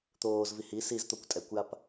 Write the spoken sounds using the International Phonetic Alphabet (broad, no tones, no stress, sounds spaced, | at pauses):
t̪ oː z v i h i s i z t̪ o kʷ tʼ ɛ kʷ j a p